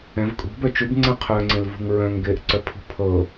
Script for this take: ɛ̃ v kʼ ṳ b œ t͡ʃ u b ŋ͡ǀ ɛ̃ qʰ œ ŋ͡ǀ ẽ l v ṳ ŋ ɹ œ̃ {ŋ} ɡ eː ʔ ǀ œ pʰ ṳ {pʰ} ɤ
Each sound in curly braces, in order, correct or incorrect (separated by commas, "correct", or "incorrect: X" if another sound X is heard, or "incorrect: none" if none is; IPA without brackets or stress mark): correct, correct